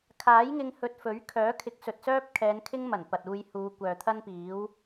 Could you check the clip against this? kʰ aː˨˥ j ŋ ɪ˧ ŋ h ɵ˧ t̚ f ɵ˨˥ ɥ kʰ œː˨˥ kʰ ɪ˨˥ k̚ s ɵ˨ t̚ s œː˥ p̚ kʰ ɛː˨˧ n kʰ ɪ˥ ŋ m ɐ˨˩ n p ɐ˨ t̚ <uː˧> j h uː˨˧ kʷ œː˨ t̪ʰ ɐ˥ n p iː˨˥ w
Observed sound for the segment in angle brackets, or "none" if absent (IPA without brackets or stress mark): uː˧